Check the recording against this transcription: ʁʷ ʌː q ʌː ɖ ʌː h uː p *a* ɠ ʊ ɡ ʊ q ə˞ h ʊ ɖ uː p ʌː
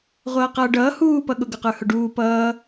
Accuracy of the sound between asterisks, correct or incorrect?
incorrect